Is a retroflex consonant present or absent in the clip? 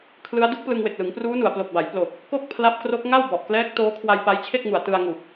absent